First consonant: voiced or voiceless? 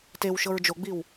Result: voiceless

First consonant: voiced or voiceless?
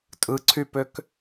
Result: voiceless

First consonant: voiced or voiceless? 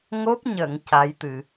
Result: voiced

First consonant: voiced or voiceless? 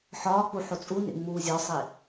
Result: voiceless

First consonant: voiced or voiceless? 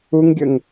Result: voiced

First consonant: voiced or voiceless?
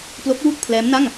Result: voiceless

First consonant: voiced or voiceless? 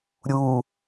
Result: voiced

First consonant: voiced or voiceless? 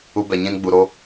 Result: voiced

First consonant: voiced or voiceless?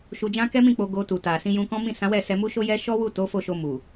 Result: voiceless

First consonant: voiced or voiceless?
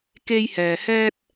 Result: voiceless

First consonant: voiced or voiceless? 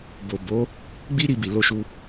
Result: voiced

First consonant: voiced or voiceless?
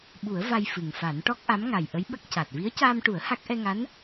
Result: voiced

